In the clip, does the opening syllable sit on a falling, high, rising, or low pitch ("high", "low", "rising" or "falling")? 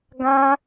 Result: high